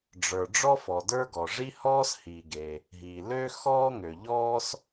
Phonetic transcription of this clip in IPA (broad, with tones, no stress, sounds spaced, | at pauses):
ɖ͡ʐ ə˞˩ ɖ͡ʐ ɔ˥ f ɔ˩ d ə˞˥ ɡ ɔ˩ ʐ i˥ h ɔː˥ s h i˩ ɡ e˩ | ɦ iː˩ l ø˥ x ɔː˥ ŋ ø˩ ʎ ɔː˥ s